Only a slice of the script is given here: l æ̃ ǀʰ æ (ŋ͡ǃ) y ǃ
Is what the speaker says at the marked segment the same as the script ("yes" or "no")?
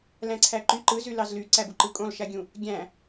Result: no